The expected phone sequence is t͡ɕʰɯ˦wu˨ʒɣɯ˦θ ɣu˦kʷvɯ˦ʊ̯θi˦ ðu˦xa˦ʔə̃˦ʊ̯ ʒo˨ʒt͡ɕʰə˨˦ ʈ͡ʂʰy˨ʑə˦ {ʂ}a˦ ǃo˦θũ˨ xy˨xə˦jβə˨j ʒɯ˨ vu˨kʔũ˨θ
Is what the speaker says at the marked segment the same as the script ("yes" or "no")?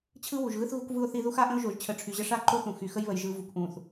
yes